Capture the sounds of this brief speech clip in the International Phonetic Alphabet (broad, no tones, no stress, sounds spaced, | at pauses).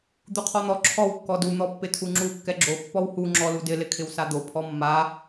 d̪ u qʰ ɔ n̪ ɔ ǁʰ ɔ w kː ɔ d u n̪ ɔ pː ɪ tʰ u ŋ͡ǁ u kː ɛ ɡ͡ǁ o pː ɔ w h u ŋ͡ǁ ɔ l u d ɪ l ɪ kʰ ɪ w s a d̪ o pʰ ɔ mː a